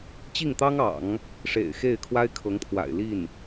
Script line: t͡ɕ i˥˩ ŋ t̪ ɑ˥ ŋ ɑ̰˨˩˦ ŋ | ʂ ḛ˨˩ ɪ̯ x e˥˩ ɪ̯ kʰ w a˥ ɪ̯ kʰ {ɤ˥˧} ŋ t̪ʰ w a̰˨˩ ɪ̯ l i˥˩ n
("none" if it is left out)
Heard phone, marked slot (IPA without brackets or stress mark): ɤ˧˥